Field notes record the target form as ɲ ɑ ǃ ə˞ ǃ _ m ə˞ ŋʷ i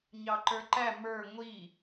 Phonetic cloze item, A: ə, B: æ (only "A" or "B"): B